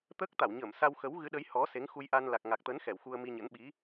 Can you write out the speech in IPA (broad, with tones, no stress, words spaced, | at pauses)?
t̪əː˦˥k̚t̪a˧˩wɲəː˧˩msa˧w xə˨˦w ɣɨ˨˦ɗə˨˦j hɔ˨˦ se˨˦ŋxu˧jʔa˧n la˨˩k̚ŋa˨˩k̚t̪ə˨˦n xɛ˧˩wxu˧ə̯mi˧ɲə̰˧˥n ɓi˨˦